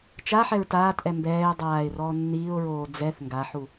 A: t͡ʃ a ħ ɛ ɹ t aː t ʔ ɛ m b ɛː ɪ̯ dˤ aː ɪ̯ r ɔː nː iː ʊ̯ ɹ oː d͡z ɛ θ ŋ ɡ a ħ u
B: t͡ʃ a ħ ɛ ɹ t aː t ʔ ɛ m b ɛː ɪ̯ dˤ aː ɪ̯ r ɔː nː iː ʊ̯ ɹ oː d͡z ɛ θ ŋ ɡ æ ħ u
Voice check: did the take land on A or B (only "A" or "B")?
A